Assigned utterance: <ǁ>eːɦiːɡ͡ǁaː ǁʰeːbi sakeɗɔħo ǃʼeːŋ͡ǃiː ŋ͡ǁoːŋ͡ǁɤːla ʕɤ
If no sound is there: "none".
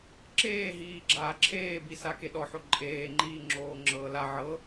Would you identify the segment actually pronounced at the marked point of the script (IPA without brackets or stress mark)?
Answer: ǁ